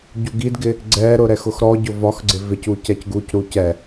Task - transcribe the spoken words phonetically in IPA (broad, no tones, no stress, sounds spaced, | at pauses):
ɟ u ɡ i d ɡ ɪ | ɡ͡ǀ ɛ ɾ ʊ ɾ ɛ x ʊ x ɾ ɔ ɟ ʊ v ɒ x ɡ͡ǀ ɪ v ɪ c u c ɛ c ɡ u c ɾ u c ɛ